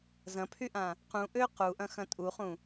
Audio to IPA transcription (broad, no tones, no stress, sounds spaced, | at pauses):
z ɐ̃ pʰ y ʔ ã | q ũ ʔ ø q u ʔ ɐ̃ x ɐ̃ tʼ u χ ũ